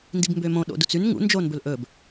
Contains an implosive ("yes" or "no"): yes